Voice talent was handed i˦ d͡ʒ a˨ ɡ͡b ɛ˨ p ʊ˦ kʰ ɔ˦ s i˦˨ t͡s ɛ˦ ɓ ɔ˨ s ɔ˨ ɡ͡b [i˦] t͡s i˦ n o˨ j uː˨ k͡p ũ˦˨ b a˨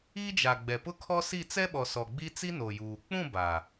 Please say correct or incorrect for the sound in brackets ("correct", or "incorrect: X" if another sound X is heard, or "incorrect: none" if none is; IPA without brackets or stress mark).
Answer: correct